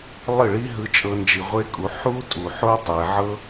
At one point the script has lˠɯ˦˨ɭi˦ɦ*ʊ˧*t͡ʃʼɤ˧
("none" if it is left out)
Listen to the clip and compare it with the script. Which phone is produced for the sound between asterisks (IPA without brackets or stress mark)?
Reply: ɯ˧